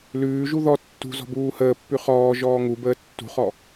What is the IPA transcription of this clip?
l ʉː ʒ u ð ɔ tː ṳ z ɔ̤ b uː h əː pː ʉ χ ɔː ʒ ɔː ŋ u b əː tː ṳ χ ɔ

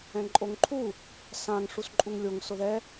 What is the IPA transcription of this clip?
ɛ̃ ǃʼ o ŋ ǃʰ u | s ã ŋ ʂ u s ǃʼ u ŋ lʲ o ŋ s ʊ ð ɛ

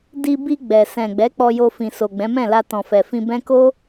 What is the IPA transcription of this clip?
d i˧ b i˧ ɡ͡b ɛ˨ s ɛ̃˨ ɡ͡b ɛ˨˦ k͡p ɔ˧ j o˧ f ĩ˨ s o˨ ɡ͡b ɛ̃˨˦ m ɛ̃˦˨ l a˧ t ɔ̃˨ f ɛ˨ f ĩ˧ b ɛ̃˦ k o˦

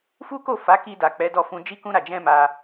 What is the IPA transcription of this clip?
f u˦ k o˦˨ f a˨˦ k i˧ d a˨ k͡p ɛ˨˦ d ɔ˧ f ũ˧ d͡ʒ i˦ k ũ˧ ɾ a˨ d͡ʒ ɛ̃˧ m a˧

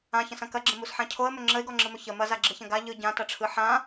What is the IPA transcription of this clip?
ã ç ɐ̃ s ɐ̃ k ɐ ɡ͡ǁ ə̃ m u s ħ ã cʰ o ə̯ m ɵ ŋ͡ǁ ə ɪ̯ ɡ ɔ ŋ͡ǁ ɯ m ɵ ç ə m ɐ z a ɡ͡ǁ ɯ ç ɐ̃ ɡ a ʎ ɯ ɟ ã t ɐ ʈ͡ʂʰ ɯ ħ ã

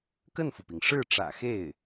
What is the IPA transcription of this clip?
k ə˥˩ n f u˩ p i˩ ŋ ʂ ɻ̩˥˩ ʈ͡ʂ ä̰˨˩ x e˥˩ ɪ̯

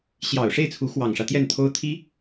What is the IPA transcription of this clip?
ɕ j ɑ˨˩ ʊ̯ ʂ e˥˩ ɪ̯ t͡sʰ u˧˥ x w ɑ˨˩ ŋ ʂ ä˦ t̪ j ɛ˥˩ n t̪ʰ o˥ ʊ̯ t̪ʰ i˥

